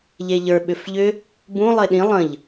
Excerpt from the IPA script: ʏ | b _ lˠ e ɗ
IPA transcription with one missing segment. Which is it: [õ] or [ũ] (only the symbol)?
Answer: ũ